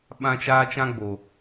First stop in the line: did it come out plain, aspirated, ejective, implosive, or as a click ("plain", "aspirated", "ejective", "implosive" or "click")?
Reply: implosive